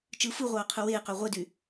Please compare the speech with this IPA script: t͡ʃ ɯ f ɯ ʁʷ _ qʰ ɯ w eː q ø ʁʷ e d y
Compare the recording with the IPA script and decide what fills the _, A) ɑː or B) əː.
A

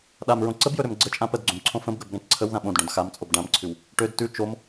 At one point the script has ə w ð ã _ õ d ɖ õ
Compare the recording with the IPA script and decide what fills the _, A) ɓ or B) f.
A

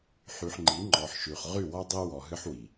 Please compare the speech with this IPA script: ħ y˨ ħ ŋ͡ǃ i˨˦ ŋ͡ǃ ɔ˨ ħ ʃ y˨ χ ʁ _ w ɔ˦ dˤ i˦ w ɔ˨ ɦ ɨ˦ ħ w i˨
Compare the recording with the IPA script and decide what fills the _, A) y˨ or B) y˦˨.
B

